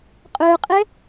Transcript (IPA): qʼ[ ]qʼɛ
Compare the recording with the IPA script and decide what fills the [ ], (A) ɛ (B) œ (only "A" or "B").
B